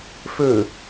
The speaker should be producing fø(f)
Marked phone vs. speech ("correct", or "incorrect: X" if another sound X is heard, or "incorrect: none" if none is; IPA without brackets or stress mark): incorrect: none